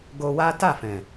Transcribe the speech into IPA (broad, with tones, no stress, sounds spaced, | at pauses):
ɡ o˧ w a˦ t a˦˨ f ɛ̃˨